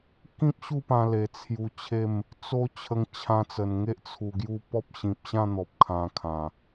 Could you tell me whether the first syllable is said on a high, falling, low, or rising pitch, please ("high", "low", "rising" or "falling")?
high